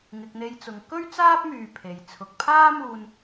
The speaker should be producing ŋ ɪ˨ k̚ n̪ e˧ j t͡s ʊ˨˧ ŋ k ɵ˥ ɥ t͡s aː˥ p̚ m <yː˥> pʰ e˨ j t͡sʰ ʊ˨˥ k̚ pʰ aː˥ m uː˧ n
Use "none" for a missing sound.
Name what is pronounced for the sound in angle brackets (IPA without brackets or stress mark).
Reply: yː˧